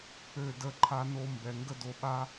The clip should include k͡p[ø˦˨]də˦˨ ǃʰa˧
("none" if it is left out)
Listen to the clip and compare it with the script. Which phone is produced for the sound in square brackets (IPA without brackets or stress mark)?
ø˦˨